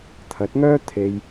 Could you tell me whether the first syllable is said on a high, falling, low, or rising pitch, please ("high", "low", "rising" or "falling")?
rising